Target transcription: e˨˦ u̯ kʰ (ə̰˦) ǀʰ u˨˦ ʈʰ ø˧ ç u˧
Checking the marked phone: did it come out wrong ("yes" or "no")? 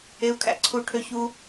yes